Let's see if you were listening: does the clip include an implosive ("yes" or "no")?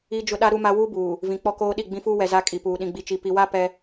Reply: yes